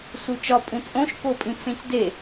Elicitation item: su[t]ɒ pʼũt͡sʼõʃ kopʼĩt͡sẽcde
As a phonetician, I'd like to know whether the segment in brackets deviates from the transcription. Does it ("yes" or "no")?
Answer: yes